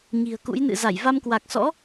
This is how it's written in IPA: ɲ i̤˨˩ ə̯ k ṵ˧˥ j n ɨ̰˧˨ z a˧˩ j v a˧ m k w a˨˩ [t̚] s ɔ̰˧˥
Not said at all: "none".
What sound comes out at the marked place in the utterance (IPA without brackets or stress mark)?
k̚